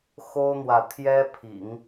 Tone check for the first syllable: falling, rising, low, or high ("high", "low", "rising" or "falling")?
high